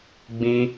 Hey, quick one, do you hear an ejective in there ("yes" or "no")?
no